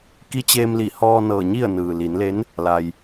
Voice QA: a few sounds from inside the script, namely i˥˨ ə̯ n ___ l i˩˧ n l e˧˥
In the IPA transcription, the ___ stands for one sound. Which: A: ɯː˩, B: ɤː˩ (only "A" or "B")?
A